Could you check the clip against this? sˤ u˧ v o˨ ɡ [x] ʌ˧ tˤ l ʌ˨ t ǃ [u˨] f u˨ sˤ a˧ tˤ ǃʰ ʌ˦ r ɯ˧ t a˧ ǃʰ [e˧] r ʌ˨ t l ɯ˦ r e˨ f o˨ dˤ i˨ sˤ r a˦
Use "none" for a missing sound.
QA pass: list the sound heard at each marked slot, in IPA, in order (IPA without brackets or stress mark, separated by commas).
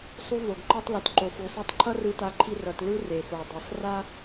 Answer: ǃ, o˨, i˧